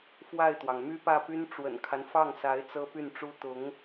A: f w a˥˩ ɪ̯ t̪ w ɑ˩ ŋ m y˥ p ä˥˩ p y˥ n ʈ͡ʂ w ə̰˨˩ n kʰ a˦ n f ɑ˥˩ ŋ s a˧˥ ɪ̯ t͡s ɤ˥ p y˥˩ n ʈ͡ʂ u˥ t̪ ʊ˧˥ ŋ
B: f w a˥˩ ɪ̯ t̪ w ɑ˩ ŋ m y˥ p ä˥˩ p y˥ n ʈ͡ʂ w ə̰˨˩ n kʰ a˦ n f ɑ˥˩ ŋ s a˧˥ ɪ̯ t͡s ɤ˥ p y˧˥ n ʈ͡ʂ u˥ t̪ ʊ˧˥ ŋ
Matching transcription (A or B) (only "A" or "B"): A